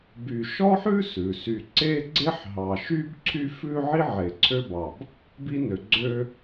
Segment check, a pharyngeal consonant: present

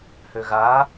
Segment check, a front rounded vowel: present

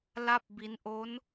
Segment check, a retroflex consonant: absent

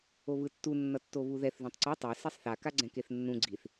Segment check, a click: present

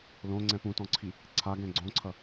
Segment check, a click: present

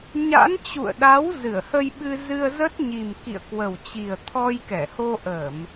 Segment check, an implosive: present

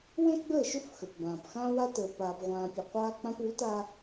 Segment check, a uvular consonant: present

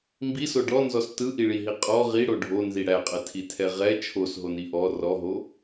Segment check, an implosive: absent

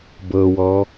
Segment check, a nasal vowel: absent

